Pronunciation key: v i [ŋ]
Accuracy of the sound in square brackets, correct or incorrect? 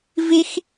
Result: incorrect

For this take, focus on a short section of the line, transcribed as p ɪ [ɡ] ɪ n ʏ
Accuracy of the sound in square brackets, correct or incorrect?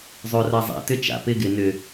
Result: correct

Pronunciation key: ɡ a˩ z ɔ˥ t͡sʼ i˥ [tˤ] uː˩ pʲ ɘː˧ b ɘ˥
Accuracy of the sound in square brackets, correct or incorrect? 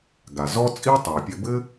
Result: correct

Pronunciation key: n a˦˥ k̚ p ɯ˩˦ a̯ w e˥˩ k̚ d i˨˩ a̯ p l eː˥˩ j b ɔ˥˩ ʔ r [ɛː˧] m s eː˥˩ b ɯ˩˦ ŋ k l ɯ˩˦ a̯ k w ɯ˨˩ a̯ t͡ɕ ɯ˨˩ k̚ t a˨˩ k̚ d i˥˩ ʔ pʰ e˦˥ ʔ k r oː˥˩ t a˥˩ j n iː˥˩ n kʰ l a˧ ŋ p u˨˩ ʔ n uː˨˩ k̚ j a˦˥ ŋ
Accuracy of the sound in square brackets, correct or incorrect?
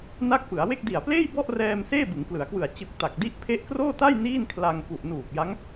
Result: correct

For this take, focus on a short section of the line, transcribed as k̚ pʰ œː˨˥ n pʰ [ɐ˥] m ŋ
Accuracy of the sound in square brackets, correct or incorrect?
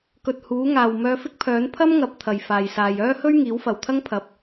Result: correct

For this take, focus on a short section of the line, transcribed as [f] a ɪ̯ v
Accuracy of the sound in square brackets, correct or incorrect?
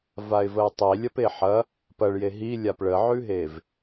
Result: incorrect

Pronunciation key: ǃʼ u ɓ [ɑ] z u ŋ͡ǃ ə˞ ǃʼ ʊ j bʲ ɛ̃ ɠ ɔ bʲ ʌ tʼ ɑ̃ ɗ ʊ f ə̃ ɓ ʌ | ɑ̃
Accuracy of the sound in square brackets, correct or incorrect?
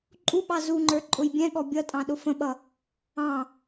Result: correct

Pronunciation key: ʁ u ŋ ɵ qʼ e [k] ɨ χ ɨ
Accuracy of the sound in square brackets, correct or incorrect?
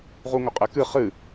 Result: correct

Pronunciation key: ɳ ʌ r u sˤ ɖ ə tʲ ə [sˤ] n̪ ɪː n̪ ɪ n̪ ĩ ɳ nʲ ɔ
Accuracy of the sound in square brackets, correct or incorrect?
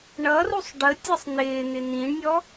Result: correct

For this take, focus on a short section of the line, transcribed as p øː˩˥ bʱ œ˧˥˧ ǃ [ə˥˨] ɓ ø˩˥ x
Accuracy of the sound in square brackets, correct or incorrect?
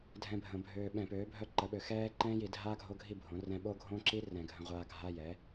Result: incorrect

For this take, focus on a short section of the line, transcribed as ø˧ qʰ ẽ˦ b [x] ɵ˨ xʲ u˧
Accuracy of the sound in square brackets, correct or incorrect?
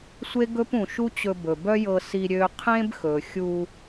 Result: correct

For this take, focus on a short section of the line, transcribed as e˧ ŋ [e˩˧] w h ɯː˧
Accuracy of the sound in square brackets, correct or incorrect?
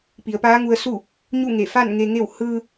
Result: incorrect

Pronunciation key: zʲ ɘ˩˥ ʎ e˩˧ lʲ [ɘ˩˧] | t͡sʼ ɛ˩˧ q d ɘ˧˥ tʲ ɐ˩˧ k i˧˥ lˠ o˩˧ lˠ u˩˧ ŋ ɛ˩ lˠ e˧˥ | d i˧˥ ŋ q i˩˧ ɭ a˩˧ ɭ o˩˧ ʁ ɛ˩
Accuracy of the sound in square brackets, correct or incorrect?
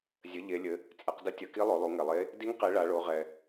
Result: correct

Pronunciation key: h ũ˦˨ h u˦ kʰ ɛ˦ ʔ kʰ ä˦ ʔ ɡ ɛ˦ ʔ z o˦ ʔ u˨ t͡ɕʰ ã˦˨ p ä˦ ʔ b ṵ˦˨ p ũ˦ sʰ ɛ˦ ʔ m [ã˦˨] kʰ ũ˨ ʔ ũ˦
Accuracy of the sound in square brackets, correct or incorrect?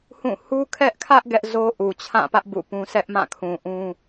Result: correct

